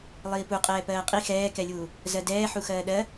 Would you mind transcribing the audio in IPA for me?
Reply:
lˠ iː p u qʼ ɛː p ɜː qʼ i x ɛː k ɛ lʲ uː | z ɜ d ɛː ħ u x ɜː ɗ ɜ

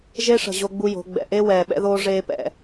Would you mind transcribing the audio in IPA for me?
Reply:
ʒ e˦ ʂ ə̤˨ ʑ o˦ ɡ͡b u˦ j o̤˨˦ ɡ͡b ɛ̰˨ ʔ e˦ w ɛː˨ ɓ ɛ̰˦ ð oː˦ ʐ eː˦ p ɛ̰˨

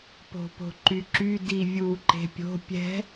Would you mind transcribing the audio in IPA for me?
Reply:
p o̤ p o̤ ǃ y ǁ y d i vʲ u ǃ e̤ pʲ o̤ pʲ ɛ̤

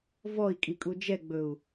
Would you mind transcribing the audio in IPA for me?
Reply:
v ɔ i̯ kʼ i kʼ u d͡ʒ ɛ ɡ͡b ɵ u̯

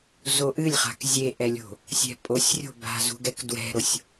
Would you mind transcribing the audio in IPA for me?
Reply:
z o ʔ ɨ lʲ χ a̤ k zʲ e ʔ ɛ lʲ o̤ | sʲ ɛ̤ pʼ o sʲ rʲ o̤ b a̤ z ṳ ɡ ɛ k d w ɛ̤ ɾ o sʲ

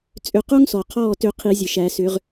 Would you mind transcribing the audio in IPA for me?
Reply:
t͡sʼ ʏ˧˩ q o˦ ŋ s ɔ˩ qʰ ɔː˧˩ t ʏ˨˩˦ qʰ i˨˩˦ zʲ ə˩ ʃ æ˨˩˦ s ʏː˨˩˦ ʁ

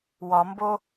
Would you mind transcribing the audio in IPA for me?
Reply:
w ɒ m b o

